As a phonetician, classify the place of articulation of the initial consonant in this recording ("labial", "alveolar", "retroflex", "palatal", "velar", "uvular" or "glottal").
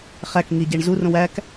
uvular